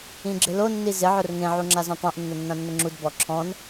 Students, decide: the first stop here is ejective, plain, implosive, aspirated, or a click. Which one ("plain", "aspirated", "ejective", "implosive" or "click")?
click